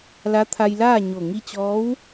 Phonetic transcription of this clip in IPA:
l a˧˥ t̪ʰ a˧ j l aː˥˨ ɲ o˧˩ ŋ i˧ t͡ɕ ɔː˧˥ w

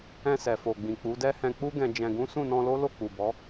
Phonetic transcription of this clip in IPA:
ɛ̃˧ s ɛ˨ f o˨ ɡ͡b ĩ˨ k͡p u˨˦ d ɛ˦ h ɛ̃˧ k͡p u˦ ɡ ɛ̃˧ d͡ʒ ɛ̃˧ ɡ ũ˦ s ũ˦˨ n ɔ̃˧ l o˦ l o˦˨ k͡p u˨ b ɔ˨˦

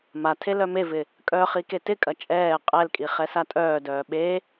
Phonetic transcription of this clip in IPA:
m a tʰ e l œ m e v ɪ | kʼ œ χ i k e t ɪ kʼ ɐ t͡ʃʼ ɛː qʼ ɛ l kʼ i χ ɛ s a tʼ œː d œː ɓ e

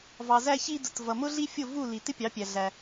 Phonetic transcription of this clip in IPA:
v ɑ˩ z æ˧ ç i˧ d ʊ˩ t v ʌ˩ m ʊ˥ ɮ i˥ fʲ ʊ˥˩ v u˥˩ l i˩ t ɪ˥ pʲ ɑ˩˥ pʲ æ˩ ɮ æ˩

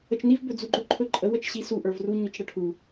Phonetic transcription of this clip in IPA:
ə t͡ʃ n i v b ɵ d͡z u ɡ͡ǃ ɵ ǃʰ ɵ ǃʼ ə w ə t͡ʃ ɕ i s u ʔ ə˞ v r u ɲ ɵ t͡ʃ ɽ ə ʈʰ u

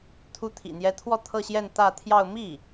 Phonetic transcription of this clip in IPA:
t̪ʰ u˧˥ t̪ʰ ḭ˨˩ n̪ j ɛ˧˥ t̪ʰ w ɔ˥˧ t̪ʰ ɤ˥˧ ɕ j ɛ˥˧ n t̪ ä˥˧ t̪ʰ j ɑ˥˧ ʊ̯ m i˥˩

